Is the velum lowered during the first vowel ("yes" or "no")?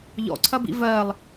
no